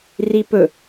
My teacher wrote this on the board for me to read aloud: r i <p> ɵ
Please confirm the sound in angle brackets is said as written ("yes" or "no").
yes